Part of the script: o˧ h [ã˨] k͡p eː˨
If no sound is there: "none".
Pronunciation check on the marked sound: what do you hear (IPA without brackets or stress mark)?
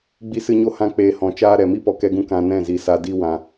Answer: ã˧